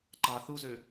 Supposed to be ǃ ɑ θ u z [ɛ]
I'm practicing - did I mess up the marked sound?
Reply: yes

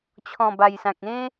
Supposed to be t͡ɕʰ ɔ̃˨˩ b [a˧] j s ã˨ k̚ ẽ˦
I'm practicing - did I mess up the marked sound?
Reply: yes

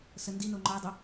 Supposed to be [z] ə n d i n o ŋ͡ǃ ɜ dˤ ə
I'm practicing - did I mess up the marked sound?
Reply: yes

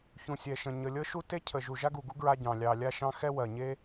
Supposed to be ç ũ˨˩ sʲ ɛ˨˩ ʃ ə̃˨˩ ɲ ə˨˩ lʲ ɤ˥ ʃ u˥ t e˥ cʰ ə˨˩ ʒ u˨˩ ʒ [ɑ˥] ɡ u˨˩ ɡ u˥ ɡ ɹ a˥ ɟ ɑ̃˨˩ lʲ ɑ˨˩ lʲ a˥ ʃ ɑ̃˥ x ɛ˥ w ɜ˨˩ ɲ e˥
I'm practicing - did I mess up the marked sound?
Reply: yes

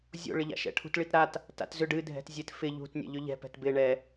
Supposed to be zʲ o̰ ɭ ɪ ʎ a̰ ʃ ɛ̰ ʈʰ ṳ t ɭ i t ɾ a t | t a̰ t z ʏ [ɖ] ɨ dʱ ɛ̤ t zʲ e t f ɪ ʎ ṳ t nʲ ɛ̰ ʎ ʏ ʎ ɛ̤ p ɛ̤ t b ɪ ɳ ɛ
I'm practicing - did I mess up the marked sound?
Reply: no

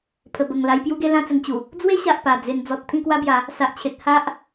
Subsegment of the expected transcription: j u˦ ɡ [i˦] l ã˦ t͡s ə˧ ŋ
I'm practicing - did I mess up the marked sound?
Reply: yes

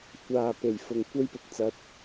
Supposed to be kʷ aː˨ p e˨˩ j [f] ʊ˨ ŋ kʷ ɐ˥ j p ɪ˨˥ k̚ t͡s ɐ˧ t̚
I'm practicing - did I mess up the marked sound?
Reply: no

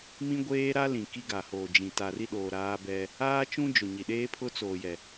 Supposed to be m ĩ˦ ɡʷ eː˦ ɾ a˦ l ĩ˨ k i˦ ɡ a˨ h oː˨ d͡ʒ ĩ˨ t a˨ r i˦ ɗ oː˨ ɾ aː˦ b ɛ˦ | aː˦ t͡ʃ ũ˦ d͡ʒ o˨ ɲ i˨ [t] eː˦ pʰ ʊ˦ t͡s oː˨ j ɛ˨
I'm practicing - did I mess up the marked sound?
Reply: yes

